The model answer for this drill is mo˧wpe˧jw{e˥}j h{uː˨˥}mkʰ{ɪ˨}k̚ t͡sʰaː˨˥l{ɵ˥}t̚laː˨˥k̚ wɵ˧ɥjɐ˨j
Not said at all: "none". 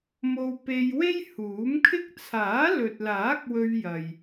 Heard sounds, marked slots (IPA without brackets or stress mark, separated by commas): e˥, uː˨˥, ɪ˥, ɵ˨